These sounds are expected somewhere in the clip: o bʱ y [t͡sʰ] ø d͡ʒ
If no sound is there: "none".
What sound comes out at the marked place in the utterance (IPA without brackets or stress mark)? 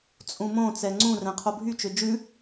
t͡ʃ